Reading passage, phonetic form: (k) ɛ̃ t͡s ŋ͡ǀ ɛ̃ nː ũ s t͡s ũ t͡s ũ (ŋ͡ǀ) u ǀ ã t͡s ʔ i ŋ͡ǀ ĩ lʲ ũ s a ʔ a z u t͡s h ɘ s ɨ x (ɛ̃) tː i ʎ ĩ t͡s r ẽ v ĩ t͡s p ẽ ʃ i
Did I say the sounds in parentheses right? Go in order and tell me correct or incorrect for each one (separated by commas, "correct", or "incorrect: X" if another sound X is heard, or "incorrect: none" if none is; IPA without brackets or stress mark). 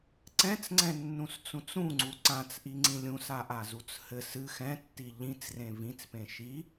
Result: incorrect: ǀ, correct, correct